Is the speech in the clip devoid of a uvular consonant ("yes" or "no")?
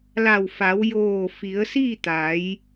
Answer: yes